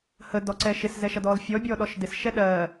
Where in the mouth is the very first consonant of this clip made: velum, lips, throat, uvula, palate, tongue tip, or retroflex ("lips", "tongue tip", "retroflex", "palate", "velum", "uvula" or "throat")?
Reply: throat